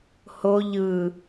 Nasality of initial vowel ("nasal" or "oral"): oral